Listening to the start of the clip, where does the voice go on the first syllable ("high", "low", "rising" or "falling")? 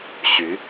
rising